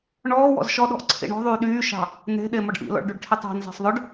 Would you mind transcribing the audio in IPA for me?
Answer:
ɳɔːwɔ̰z ʃɔɗɔ̤ʔǀʰḭ ɳɔ̤ðˤyː ɗyːʃɑ̤ | ne̤ ɗemɔɖʔḭlɔ̰ɭ ɖyɖʈʰitˤɑ̤n zɑ̤sˤðˤœɖ

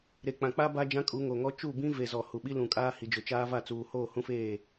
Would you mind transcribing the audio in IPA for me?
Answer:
ɾe˨k͡pã˨k͡pa˦ ba˦d͡ʒã˦kʼu˨˦ŋoː˨ ŋɔ˦ t͡ʃu˦˨bĩ˦ ve˨zɔ˨ hu˨ɓi˦ lũ˨kʼaː˦ hi˨d͡ʒʊ˨t͡ʃaː˦ va˦˨t͡suː˨ hoː˦˨hũ˦feː˦˨

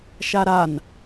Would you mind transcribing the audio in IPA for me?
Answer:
ʃaɾan

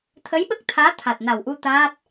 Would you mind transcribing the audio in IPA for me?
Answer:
t̪ʰə˧˥jɓə˦˥k̚t̪ʰaː˧˥ t̪ʰa˨˩t̚na˨˩wʔu˧ t̪aː˦˥t̚

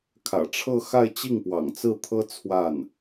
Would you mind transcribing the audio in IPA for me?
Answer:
kʰä̰˨˩ʈ͡ʂʰɤ˥˧xa˥˧ɪ̯ t͡ɕi˥˩ŋpwɑ̰˨˩ŋt͡sɹ̩˥˩t̪ʰɤ˥ t͡sʰwa˥˩n

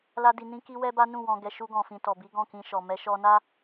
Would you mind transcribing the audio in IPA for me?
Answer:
la˦di˧ nĩ˦ki˦ wɛ˦ba˦nũ˦˨wɔ̃˧ ɡɛ˧ʃu˦ɡɔ̃˧ fĩ˨tɔ˨bi˨˦ ɡɔ̃˦˨kĩ˧ ʃɔ˨ mɛ˧ʃɔ˧na˦

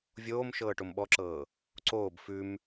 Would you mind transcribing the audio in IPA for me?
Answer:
vʲoːmʃɤː ʈomɓɔǁɤː | ǀoːb fʉm

